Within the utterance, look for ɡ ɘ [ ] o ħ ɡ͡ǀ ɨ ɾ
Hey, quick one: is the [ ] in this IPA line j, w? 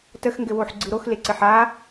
w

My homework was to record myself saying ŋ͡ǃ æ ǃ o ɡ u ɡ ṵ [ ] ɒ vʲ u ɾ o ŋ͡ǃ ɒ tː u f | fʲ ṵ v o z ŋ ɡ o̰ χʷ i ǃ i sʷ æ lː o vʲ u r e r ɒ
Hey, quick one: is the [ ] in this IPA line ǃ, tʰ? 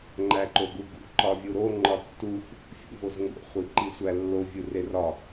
ǃ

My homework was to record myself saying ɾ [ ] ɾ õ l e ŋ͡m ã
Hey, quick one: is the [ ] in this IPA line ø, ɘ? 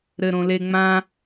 ɘ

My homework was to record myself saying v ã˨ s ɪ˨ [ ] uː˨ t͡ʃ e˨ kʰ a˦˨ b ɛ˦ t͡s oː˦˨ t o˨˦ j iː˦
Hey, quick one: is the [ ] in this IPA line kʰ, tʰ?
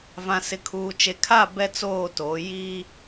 kʰ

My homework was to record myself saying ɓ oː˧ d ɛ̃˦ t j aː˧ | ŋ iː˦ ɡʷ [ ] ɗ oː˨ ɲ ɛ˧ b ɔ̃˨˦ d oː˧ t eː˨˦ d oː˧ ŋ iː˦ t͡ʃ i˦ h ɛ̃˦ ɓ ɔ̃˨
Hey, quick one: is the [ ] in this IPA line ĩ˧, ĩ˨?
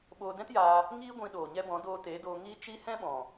ĩ˧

